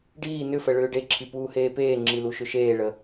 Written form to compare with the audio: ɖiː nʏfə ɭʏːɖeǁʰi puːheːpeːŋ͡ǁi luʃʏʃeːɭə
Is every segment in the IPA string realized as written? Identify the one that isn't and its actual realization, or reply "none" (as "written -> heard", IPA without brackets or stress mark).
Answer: none